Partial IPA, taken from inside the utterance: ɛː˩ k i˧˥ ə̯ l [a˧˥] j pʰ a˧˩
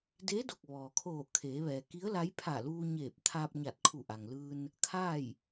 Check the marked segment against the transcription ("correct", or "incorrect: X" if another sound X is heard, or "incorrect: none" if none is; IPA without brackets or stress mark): correct